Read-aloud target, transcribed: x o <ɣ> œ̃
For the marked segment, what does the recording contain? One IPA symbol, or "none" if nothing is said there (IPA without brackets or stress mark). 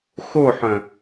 ħ